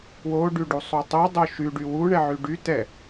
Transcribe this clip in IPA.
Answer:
w o ɖ y ɖ u sˤ u tˤ o dˤ o ʃ y ɖ y w u ɳ ɛ ʕ y ɖ y t ɛ

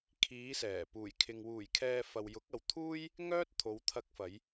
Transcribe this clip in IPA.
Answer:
kʰ iː˨˧ s ɛː˨˩ p uː˨˩ j kʰ ɪ˨ ŋ w uː˨˩ j kʰ ɛː˨ f ɐ˨ w j ʊ˨˥ k̚ ɐ˨ w t̪ʰ uː˥ j | ŋ œː˥ t̚ t̪ʰ o˨˧ w t̪ʰ ɐ˧ k̚ f ɐ˨˧ j

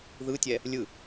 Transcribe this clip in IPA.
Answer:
ð ɯ tʲ ɛ | lʲ ɯ

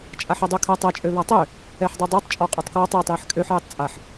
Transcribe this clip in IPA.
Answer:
t͡ʃʼ a ħ ɛ dˤ ø kʰ a tˤ ɛ t͡ʃʼ ø β a tˤ ø | ɛ ħ dˤ ø dˤ e tˤ t͡ʃʼ ɔ qʼ ø tˤ k w ɔ tˤ j e tˤ j ɛ ħ kʼ ø ħ j e tˤ t͡sʼ a ħ

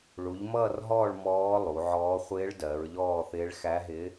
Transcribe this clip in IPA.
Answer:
ɭ u˩˧ ʎ m ʌː˦˨ r ɦ ɔː˦˨ ɭ m ɔː˧˥ lˠ u˩˧ ʕ ɔː˧˥ χʷ ɪː˧˥ ɭ d ɜ˩˧ ɹ ʎ ɔː˦˨ θ ɪː˧˥ ɭ x æ˧˥ ɦ ɪː˧˥

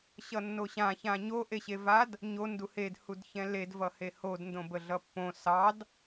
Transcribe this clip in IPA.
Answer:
ɕ ʌ nː o ɕ ã ç ã ɲ o ʔ e ɕ e v a d | ɲ o n d u h e d h u d ç ɛ̃ l e d v ʌ h e h o d n d õ b ə ɮ ʌ pː õ s ɑ d

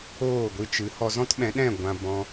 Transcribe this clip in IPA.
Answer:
oː˦˨ ɡʷ ɨ˧ t͡ʃ ɨ˨˦ h ɔ˧ z ɔ̃˦ t ɓ ɛ̃˨˦ ɗ ɛ̃˦˨ ɡʷ ã˧ b ɔ̃˧

